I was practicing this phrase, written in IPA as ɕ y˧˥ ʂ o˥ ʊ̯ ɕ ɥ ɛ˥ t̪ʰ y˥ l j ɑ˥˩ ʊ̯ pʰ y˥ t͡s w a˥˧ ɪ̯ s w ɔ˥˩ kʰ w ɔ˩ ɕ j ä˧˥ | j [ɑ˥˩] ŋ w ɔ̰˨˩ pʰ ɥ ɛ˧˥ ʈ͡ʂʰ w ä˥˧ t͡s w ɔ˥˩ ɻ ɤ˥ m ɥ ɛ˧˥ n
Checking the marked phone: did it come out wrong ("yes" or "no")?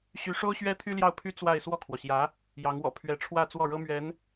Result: yes